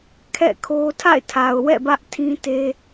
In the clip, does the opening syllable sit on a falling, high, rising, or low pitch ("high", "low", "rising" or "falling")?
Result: falling